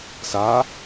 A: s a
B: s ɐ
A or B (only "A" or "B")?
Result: A